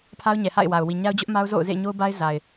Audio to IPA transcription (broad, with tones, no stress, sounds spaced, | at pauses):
pʰ a˦ ʊ̯ ɲ ɛ˨ h a̰˦˨ ɪ̯ w a˨ ʊ̯ w i˨ ɲ a˦ ʊ̯ d͡ʑ ʊ˦ ʔ m a˦ ʊ̯ z o̰˦˨ ʊ̯ z ḛ˦˨ ɪ̯ ɲ o˦ ʊ̯ b a˦ ɪ̯ z a˨ ɪ̯